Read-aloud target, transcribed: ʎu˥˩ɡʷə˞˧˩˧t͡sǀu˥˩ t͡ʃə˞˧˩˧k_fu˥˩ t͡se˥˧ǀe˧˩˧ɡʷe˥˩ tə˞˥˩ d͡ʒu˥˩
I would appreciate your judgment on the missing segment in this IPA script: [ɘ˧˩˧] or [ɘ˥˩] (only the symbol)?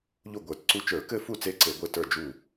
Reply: ɘ˥˩